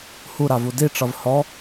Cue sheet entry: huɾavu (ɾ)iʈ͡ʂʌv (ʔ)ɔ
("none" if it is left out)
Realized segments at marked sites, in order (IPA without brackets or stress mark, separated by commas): d, h